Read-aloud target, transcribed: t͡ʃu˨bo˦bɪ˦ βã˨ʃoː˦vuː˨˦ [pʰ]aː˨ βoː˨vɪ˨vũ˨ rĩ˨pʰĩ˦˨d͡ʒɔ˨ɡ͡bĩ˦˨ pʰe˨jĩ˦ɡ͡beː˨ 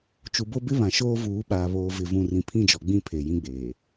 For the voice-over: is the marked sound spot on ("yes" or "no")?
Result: no